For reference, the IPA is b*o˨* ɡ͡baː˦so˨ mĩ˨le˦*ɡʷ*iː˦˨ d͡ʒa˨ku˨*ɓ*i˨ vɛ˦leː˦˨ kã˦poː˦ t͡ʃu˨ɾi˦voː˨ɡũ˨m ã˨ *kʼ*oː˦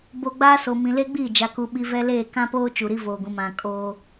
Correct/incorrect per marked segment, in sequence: correct, incorrect, correct, correct

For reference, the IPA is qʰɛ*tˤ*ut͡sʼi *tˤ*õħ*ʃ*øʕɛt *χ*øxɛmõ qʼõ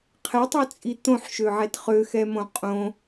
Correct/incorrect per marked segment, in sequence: correct, incorrect, correct, correct

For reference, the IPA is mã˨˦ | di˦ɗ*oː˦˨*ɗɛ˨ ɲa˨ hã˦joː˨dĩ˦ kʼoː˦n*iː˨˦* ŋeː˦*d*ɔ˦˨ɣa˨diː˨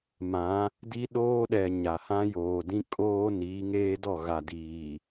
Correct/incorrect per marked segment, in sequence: incorrect, correct, correct

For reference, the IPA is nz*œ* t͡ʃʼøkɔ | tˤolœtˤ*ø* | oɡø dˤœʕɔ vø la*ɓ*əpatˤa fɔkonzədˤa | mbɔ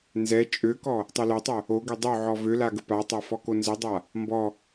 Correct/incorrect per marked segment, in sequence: incorrect, incorrect, incorrect

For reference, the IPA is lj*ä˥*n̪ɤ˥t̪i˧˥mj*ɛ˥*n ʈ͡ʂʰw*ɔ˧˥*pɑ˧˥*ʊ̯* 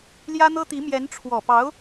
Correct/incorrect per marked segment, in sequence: correct, incorrect, incorrect, correct

